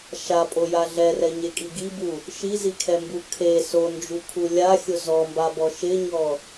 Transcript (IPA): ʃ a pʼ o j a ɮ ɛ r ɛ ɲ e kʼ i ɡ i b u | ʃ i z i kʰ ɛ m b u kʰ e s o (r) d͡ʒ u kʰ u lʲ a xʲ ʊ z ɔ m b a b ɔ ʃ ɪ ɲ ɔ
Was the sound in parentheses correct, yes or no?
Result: no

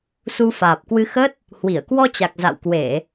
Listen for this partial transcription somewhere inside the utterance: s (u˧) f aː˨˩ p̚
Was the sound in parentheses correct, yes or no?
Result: yes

